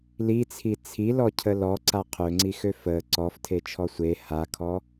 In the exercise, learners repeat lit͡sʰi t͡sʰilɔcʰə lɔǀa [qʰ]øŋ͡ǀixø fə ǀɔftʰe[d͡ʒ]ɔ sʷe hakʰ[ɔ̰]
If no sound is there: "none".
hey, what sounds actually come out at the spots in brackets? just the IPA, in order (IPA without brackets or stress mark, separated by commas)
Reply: qʰ, t͡ʃʰ, ɔ